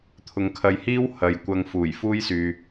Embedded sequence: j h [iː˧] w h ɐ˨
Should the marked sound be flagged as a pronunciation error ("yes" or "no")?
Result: yes